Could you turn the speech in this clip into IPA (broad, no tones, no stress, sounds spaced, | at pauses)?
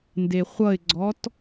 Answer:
n d e χʷ ʌ ɪ̯ ɡ͡ǀ ɔ t